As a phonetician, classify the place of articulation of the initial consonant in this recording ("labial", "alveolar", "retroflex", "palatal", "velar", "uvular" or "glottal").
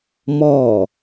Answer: labial